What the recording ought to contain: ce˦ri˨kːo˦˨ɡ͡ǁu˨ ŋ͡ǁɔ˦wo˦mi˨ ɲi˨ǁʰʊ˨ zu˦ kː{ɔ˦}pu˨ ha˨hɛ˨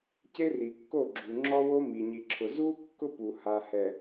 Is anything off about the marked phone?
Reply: yes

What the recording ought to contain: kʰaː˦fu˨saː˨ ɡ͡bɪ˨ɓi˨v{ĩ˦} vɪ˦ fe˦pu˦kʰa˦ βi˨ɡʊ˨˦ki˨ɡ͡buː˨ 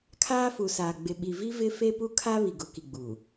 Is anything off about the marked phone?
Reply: yes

